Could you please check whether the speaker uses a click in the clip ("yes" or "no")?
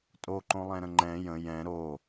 yes